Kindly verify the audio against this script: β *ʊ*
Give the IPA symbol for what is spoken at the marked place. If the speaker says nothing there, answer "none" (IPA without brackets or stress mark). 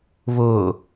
ʊː